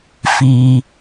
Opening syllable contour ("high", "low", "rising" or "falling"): low